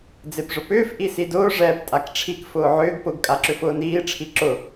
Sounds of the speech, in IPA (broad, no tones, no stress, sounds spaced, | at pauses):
d͡z e p ʐ ʊ p ʏː f ʔ i s i d ʊː ʐ ɛː p tʼ a k ʈ͡ʂʰ i k f ʊː ʕ ʏː ɡ p ʊ ɡ kʼ a ǁ ʏ f ʊː n iː ʈ͡ʂʰ i ǁ ʊ